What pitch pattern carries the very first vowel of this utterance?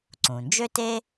low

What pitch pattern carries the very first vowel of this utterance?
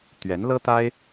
rising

